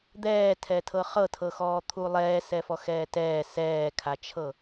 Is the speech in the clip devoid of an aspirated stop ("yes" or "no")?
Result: no